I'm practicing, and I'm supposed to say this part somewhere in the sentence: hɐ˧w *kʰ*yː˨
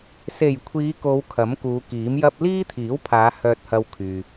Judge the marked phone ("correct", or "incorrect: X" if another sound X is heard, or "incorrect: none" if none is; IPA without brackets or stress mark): correct